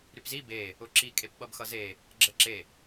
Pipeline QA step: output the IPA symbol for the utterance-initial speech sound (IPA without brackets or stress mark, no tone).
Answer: ɾ